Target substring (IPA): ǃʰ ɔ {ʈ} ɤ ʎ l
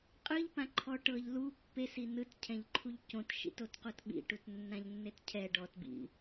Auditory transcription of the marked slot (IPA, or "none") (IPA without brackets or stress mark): ʈ